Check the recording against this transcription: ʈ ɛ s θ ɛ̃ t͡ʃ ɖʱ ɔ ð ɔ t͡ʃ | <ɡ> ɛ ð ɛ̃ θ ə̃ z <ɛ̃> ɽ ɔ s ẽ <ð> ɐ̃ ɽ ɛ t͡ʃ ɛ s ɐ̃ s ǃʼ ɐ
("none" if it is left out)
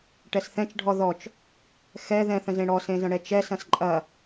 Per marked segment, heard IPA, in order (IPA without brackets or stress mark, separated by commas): x, ẽ, z